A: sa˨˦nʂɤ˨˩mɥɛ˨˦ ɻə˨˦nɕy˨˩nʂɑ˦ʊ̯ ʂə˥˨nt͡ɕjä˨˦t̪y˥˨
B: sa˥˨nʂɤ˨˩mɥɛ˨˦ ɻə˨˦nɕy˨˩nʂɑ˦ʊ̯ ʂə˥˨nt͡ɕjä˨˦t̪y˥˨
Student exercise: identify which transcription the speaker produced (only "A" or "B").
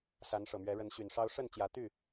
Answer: A